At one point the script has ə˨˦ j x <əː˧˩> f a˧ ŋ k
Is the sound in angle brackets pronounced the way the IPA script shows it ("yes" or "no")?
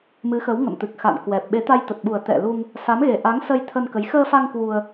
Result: no